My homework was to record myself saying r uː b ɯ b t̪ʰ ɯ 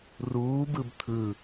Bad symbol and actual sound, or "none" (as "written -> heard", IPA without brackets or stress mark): none